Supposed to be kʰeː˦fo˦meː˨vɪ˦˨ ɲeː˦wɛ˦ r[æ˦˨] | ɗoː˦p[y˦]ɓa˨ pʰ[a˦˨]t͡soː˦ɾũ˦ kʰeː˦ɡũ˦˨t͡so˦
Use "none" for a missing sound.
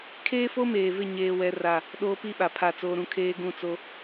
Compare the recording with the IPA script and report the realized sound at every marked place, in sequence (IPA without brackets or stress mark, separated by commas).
a˦˨, i˦, a˦˨